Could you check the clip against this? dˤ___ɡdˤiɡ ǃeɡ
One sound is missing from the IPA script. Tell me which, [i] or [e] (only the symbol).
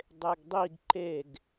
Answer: e